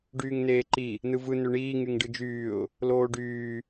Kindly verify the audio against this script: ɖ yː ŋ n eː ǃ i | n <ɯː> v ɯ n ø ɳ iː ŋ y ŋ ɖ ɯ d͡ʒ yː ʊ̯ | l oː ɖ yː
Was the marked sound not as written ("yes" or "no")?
yes